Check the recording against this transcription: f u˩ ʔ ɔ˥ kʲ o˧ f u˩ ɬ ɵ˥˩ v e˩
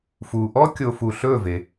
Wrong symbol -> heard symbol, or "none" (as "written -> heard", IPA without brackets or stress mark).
none